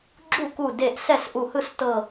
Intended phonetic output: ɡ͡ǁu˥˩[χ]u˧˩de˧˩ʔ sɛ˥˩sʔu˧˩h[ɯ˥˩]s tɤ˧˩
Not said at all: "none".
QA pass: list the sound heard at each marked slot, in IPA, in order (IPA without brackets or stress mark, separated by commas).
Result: k, ɯ˥˩